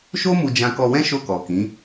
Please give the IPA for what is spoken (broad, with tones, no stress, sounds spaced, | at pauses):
ʃ o˦ m u˧ d͡ʒ ã˧ k ɔ˧ w ɛ̃˦ ʃ o˦˨ k ɔ˨ k ĩ˨˦